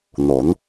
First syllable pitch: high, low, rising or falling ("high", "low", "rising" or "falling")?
rising